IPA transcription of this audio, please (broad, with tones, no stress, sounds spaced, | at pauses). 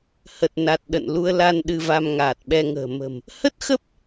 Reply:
h ə˨˩ t̚ n a˨˩ t̚ ɗ ə̰˧˨ n l u˧ ə̯ l a˧ n ɗ ɨ˧ v a˧ m ŋ aː˨˩ t̚ ɓ ɛ˧ ŋ ə̤ː˨˩ m ə̤˨˩ m | h ə˦˥ t̚ x ə˦˥ p̚